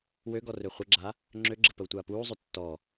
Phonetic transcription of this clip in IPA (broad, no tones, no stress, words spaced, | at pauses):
wøɡɔ røχʷəɡ͡ǁa | ŋ͡ǁøɡ͡ǁə pəwtʷaːpuːzˤø tːɔ